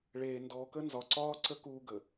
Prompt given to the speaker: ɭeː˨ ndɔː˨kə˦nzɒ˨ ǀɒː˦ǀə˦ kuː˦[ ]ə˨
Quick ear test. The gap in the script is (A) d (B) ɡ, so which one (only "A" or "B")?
B